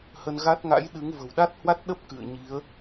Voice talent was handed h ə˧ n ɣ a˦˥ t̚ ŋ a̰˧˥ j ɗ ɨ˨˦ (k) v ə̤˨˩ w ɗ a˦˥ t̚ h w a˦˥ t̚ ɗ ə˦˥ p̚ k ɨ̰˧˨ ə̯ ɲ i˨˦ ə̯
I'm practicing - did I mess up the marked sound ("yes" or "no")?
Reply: yes